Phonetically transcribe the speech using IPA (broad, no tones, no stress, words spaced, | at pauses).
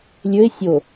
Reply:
lʲɵɪ̯ sʲo